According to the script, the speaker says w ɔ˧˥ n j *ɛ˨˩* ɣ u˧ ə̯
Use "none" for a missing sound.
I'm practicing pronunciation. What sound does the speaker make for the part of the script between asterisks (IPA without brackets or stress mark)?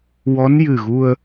ɨ˨˩